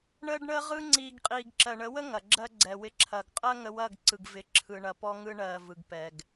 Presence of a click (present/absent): present